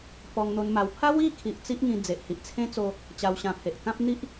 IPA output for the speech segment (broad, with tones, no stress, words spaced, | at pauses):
pɔ˧ŋn̪o˧nma˧w pʰa˦wi˥˧kʰi˨ʔ t͡si˦ʔŋĩ˧ d͡ze˨ʔhi˨ʔt͡sʰẽ˦t͡so˧ | t͡ɕa˧wɕã˧pʰe˨ʔ kã˦p̚n̪i˦ʔ